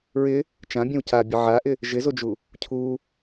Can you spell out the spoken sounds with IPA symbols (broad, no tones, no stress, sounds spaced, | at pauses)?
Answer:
ɹ ɪ | t͡ʃ ã bʲ õ w c a bʲ ə ʕ a ʔ ɪ | ʒ ɪ z o d͡ʒ u | cʰ u